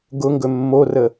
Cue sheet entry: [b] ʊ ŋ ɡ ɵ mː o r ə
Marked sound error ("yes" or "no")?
yes